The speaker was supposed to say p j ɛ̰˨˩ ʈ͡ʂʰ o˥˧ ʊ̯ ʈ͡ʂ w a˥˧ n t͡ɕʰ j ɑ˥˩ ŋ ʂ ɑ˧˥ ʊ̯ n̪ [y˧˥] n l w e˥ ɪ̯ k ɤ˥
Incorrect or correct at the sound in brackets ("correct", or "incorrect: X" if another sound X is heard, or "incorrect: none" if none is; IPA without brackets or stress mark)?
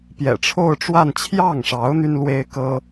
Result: incorrect: y˥